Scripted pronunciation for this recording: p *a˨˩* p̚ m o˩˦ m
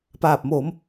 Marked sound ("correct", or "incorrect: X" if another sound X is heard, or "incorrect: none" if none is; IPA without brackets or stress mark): incorrect: aː˨˩